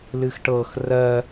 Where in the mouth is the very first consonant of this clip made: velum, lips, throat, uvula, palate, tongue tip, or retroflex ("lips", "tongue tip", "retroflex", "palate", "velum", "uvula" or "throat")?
tongue tip